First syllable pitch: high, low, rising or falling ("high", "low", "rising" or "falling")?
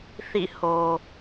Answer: falling